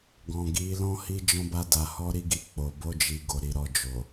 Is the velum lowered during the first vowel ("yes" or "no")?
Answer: yes